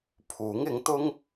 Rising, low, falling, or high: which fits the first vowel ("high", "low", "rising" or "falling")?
rising